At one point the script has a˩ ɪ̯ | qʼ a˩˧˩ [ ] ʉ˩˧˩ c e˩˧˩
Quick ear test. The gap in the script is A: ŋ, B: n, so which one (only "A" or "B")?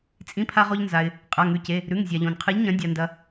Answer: A